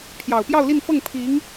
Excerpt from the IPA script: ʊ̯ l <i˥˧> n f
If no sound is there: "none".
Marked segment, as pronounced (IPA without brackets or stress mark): i˥˧